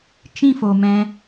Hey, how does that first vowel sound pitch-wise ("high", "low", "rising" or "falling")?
falling